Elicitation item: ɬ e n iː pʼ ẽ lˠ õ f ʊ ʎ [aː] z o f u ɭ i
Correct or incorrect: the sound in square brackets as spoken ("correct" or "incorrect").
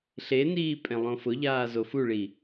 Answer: correct